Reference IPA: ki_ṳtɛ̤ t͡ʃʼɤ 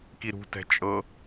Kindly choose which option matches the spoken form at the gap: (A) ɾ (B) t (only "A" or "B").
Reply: A